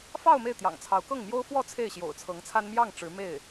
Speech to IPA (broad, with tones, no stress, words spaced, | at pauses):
fɑ˥˧ʊ̯ me˥˩ɪ̯t̪jɑ̰˨˩ŋt͡sʰɑ˧˥ʊ̯ kɤ˥˩ŋmjo˥ʊ̯ fwɔ˥˧ t͡sʰe˥˩ɪ̯ɕjo̰˨˩ʊ̯t͡sʰɤ˧˥ŋt͡sʰa˥n mjɑ˥˩ŋ ʈ͡ʂɻ̩˧˥me˥˩ɪ̯